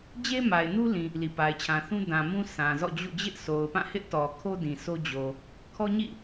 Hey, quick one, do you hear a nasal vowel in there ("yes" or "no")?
yes